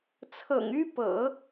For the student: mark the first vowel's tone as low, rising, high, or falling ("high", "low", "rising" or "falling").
low